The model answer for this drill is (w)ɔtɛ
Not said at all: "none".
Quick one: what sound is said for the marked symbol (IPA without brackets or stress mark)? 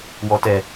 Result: w